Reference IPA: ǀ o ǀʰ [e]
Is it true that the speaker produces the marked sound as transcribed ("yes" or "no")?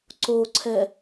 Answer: no